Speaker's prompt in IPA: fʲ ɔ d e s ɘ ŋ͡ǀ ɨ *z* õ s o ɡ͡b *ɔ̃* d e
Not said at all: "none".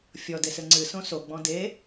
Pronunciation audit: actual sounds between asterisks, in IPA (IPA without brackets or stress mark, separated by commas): s, ɔ̃